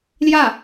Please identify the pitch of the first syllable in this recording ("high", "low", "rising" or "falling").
falling